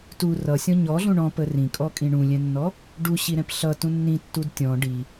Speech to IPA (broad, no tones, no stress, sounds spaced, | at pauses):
t u r ʌ sʲ ɔ̃ ɲ ɔ ɮ ũ ɳ ɔ̃ p ə r ĩ kʼ ɔ kʼ ĩ ɳ ũ lʲ ɛ̃ nː ɔ | ɖ u ɕ i ɾ ɛ̃ p ɬ ʌ t ũ nː ĩ tː u d tʲ ɔ̃ ɖ i